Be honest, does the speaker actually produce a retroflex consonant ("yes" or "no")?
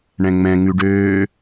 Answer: yes